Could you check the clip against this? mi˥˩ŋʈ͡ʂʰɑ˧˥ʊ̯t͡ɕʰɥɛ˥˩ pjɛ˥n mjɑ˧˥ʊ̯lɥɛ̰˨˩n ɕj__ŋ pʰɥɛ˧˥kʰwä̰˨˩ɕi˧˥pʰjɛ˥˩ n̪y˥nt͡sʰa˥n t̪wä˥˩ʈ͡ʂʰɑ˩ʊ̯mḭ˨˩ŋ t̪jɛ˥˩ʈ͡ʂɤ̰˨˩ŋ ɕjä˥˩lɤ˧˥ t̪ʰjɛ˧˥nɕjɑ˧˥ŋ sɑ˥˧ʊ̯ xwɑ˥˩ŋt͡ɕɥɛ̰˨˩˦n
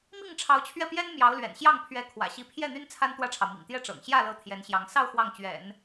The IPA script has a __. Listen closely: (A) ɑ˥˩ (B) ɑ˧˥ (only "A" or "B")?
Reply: A